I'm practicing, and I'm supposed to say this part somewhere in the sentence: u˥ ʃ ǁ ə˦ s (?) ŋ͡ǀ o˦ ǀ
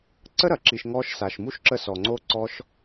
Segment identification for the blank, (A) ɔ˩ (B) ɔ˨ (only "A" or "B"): B